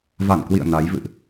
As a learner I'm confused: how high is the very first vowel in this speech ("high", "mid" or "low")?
low